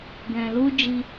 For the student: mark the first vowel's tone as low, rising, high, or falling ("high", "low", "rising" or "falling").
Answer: low